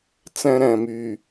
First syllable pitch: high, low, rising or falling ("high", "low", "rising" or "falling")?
high